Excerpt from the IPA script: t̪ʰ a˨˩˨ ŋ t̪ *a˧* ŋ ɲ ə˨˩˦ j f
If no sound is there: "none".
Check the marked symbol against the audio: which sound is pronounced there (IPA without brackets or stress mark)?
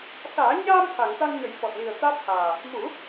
a˧